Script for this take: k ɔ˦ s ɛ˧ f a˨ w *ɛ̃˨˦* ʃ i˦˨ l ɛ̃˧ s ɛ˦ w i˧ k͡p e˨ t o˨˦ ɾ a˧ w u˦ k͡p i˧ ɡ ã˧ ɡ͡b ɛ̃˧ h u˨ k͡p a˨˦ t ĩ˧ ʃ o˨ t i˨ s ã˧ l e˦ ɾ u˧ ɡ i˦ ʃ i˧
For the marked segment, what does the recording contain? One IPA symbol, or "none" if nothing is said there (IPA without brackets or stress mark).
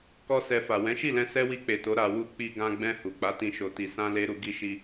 ɛ̃˨˦